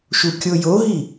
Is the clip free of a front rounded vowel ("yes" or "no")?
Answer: yes